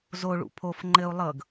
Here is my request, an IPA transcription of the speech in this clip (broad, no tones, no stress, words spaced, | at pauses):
zoɭṵ pʰof ŋ͡ǃɘu̯ lˠɤɡ